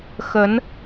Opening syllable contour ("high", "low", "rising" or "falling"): rising